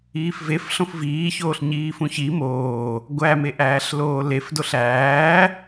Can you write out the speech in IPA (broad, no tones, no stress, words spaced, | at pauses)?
iːfvef ɬõfviːçoːɬ ɲiːfũçi moː | ɡʷæmeʔæːɬloː lefdoɬ æː